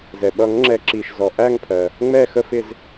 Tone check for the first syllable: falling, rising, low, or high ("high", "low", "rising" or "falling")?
low